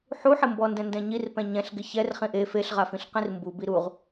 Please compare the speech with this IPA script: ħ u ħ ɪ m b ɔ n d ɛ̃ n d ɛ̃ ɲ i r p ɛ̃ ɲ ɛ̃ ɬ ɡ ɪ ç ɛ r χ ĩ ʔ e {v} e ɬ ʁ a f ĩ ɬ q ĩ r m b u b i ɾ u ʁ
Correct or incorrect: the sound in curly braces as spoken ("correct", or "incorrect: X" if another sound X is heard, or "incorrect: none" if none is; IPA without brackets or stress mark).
incorrect: f